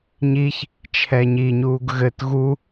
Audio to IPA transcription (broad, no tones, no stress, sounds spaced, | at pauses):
ɲ i ç | t͡ʃʰ ɛ ɲ i ɲ uː ɡ ɣ ɘ t ɣ u